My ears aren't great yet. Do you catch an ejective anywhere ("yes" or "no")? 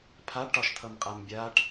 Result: yes